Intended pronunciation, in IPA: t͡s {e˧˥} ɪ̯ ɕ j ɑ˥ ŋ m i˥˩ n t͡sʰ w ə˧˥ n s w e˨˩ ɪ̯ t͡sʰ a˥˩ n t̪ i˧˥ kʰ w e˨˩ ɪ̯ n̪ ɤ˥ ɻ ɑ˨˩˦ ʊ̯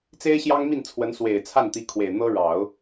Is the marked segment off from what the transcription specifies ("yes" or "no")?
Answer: yes